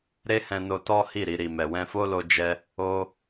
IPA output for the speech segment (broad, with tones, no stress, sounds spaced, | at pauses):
ɾ e˦ h ɛ̃˧ n o˧ t ɔ˦ h i˦˨ ɾ i˧ ɾ i˨ m ɛ˨ w ɛ̃˧ f o˦ l o˧ d͡ʒ ɛ˧ | o˦